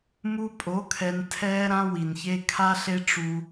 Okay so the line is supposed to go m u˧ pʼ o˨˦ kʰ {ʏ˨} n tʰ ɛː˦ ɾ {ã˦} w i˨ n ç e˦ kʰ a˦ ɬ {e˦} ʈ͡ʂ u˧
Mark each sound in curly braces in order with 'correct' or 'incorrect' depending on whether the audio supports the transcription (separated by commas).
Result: incorrect, correct, correct